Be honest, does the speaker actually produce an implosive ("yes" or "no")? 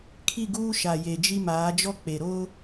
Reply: no